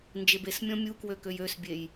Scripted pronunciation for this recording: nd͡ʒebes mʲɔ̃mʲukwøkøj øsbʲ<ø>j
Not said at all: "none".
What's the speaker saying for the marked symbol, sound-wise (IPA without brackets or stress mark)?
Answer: e